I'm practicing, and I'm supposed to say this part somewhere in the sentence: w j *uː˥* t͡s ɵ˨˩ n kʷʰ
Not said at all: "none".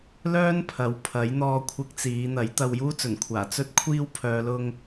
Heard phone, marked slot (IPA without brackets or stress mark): uː˥